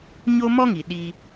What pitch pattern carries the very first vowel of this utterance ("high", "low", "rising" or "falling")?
high